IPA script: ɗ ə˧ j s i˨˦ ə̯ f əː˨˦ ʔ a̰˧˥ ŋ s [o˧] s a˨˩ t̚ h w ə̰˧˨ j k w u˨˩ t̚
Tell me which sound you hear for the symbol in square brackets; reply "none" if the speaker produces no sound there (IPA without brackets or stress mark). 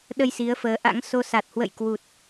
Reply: o˧